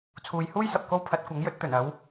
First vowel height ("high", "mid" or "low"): high